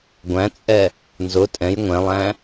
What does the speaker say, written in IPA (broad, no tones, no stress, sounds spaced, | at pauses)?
ɡʷ æ̃ t͡sʼ ɛ | n z ʊ tʼ ɛ̃ j ŋʷ ɛ̃ lˠ æ̃